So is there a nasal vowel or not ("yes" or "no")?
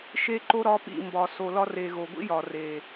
no